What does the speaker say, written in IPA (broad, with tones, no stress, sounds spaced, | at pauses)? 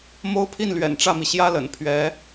m o˥ ʊ̯ pʰ i˥˩ n l ɥ ɛ̰˨˩ n ʈ͡ʂ ä˥˩ m i˩ ɕ j ä˥ l ə̰˨˩ n pʰ ɥ ɛ˧˥